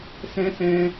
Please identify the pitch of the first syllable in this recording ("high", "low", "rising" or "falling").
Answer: high